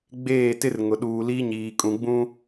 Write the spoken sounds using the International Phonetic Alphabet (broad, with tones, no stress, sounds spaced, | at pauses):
ɡ͡b eː˦˨ t ɪ˦ r ŋ ʊ˨ ɗ uː˨ l i˦ ɲ iː˨ kʼ ũ˨ ɡ͡b ũ˦